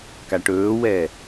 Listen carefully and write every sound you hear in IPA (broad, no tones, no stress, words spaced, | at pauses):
kaʈɵːwɛ